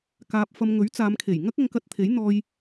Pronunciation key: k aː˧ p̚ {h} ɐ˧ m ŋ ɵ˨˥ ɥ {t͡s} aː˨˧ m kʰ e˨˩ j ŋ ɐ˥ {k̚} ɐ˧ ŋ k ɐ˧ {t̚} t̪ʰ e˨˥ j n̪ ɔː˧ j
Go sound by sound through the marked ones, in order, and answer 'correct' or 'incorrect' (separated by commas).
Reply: incorrect, correct, correct, correct